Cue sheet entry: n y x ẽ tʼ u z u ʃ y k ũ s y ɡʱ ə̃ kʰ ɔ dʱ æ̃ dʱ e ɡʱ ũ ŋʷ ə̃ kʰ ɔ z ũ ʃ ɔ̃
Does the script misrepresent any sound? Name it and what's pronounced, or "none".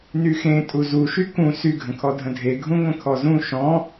æ̃ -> ə̃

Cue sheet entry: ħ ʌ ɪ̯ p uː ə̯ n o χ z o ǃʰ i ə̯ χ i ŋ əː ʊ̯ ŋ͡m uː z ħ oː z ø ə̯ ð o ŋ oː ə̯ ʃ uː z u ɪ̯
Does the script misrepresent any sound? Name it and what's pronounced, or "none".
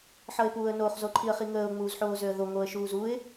none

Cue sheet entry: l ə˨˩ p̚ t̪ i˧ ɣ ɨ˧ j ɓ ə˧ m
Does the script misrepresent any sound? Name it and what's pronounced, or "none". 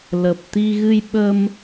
none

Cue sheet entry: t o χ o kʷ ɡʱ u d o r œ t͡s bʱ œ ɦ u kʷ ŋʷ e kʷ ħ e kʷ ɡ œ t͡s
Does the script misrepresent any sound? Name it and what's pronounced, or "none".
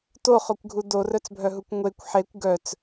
none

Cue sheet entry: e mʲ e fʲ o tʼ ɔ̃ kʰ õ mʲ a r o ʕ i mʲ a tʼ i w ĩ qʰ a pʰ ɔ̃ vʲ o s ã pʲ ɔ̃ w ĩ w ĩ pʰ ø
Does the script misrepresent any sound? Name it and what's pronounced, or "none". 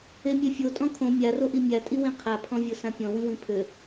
ʕ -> ʔ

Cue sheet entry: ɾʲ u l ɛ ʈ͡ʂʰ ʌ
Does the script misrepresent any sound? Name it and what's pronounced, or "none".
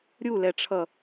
none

